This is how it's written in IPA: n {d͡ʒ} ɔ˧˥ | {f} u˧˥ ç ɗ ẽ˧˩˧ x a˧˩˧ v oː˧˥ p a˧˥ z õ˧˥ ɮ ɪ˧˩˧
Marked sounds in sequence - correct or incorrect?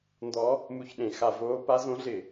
incorrect: d, incorrect: m

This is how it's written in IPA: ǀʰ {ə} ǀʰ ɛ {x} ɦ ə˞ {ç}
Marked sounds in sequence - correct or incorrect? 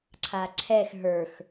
incorrect: a, correct, incorrect: x

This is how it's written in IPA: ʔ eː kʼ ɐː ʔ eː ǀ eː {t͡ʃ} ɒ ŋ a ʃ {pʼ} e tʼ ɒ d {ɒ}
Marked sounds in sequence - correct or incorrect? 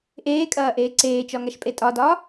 correct, correct, incorrect: ɒː

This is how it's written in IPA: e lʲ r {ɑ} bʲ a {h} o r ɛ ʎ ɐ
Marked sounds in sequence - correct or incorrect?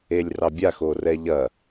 correct, incorrect: x

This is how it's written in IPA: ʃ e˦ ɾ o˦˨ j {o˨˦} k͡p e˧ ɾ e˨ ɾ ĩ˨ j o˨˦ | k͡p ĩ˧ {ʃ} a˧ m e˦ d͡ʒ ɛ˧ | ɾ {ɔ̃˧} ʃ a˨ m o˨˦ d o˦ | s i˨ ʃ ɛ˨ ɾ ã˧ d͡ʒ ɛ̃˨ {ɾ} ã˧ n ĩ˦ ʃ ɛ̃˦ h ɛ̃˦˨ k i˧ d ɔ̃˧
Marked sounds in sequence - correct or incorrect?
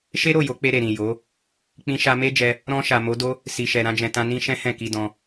correct, correct, correct, incorrect: t

